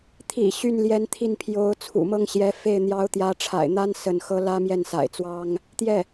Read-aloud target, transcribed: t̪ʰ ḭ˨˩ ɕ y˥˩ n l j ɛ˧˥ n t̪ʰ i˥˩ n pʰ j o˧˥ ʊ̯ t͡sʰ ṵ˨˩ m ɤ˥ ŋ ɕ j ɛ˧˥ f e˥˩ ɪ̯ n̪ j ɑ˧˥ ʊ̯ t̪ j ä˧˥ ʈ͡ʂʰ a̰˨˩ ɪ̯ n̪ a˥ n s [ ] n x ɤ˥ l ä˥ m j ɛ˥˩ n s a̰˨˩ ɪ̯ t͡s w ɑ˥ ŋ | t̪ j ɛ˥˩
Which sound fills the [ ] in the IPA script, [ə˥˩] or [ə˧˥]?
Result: ə˥˩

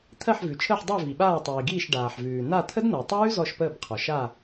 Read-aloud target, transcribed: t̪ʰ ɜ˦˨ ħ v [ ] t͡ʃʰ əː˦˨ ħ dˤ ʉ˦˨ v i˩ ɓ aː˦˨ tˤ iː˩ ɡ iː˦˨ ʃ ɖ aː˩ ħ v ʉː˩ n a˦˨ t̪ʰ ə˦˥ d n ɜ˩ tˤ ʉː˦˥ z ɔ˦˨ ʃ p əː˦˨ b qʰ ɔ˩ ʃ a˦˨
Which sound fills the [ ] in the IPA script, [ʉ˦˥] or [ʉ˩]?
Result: ʉ˩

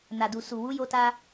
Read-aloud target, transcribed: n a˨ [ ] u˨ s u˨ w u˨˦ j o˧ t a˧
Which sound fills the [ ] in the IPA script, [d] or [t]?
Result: d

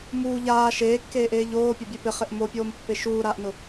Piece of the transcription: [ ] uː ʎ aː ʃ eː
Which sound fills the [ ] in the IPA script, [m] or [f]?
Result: m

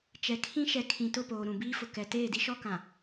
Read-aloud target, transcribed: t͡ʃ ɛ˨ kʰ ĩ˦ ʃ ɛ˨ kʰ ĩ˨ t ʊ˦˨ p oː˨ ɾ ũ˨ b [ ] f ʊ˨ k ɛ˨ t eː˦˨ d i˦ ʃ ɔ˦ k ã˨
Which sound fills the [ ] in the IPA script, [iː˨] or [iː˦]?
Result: iː˦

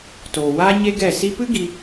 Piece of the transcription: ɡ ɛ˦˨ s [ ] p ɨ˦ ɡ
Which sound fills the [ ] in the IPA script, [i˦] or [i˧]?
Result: i˧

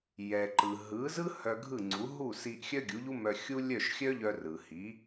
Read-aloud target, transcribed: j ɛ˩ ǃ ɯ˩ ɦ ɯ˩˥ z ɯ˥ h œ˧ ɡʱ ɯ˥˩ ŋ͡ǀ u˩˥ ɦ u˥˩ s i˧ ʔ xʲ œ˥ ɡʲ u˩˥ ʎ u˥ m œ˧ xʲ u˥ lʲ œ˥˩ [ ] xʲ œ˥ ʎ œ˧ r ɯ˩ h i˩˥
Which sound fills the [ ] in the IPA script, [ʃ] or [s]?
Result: ʃ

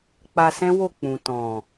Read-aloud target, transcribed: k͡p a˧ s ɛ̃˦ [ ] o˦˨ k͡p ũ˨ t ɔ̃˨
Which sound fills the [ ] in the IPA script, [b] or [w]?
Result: w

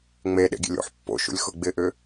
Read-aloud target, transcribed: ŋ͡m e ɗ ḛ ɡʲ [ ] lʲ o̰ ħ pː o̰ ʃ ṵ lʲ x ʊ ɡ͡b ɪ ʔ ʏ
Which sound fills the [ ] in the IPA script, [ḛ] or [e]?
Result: ḛ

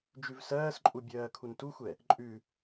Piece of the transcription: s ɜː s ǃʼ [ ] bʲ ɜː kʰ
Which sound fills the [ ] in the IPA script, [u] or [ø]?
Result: u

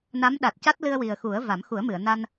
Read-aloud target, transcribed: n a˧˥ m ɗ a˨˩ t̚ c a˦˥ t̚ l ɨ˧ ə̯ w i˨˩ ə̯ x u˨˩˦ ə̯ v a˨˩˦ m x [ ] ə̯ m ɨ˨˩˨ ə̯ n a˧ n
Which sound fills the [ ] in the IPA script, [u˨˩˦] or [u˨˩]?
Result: u˨˩˦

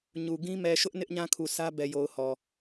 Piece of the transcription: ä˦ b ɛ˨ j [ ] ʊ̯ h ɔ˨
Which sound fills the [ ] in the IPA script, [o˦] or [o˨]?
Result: o˨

